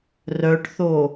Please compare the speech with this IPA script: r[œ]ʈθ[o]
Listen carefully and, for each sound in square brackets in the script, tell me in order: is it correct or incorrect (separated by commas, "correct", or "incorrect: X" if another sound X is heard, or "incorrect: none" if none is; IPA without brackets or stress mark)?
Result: correct, correct